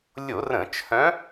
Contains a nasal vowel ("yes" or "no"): yes